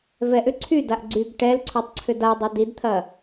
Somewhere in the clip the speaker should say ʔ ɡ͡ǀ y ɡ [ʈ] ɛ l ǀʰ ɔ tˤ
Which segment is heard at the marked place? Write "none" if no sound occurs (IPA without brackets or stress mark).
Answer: ʈ